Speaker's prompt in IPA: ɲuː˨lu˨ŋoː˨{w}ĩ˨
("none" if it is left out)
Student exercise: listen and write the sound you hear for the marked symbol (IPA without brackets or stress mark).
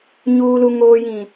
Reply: j